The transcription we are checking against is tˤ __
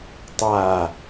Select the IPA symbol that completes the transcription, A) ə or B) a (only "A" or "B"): B